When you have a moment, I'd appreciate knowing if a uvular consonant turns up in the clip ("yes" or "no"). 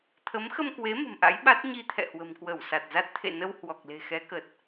no